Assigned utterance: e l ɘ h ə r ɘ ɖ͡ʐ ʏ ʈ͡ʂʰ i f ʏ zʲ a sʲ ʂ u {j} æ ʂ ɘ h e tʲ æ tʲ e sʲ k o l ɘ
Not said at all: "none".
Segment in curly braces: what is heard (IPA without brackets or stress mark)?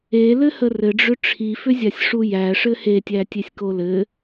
j